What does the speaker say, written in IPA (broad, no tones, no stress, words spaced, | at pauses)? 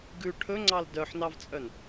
ɡʉ ʈʰɵŋ͡ǀɑl dœħnɑvt͡sʼœn